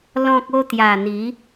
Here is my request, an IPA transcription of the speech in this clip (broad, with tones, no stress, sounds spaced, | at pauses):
l ɔ̃˦ k̚ o˦ t̪ j a˨˩ n̪ i˨˦